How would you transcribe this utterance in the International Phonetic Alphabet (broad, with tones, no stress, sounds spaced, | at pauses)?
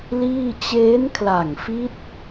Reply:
l iː˥˩ t͡ɕ eː˦˥ n kʰ l a˨˩ ŋ f i˦˥ t̚